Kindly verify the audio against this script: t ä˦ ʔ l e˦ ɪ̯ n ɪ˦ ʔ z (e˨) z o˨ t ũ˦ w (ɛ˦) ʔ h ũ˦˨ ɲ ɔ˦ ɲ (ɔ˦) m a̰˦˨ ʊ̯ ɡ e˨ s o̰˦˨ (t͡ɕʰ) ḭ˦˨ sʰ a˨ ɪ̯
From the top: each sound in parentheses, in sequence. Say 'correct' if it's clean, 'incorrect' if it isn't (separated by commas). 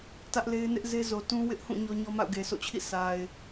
incorrect, incorrect, correct, correct